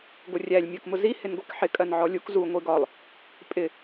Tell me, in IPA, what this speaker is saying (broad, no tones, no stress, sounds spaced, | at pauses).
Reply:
ɡʷ ə rʲ æ lʲ mʲ ɜ k m ʊ z i h ɪ n ɡʷ i k ħ ɪ kʼ ɜ n ʕ ɔ lʲ u k z u ŋʷ i ɡ ɒ lˠ | pʼ ɪ